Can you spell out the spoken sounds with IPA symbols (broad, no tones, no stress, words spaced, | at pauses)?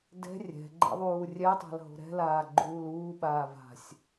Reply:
dɛ̤ rʲɛ̤ ɡ͡ǃɛ̰ðˤuːrʲɛtˤa̤l ɦo̤ɾɛ̤laː ɡ͡ǃuːluːɓaː va̤sʲ